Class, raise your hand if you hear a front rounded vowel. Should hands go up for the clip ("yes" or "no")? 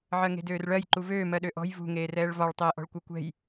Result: yes